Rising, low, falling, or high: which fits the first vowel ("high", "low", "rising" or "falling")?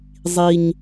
low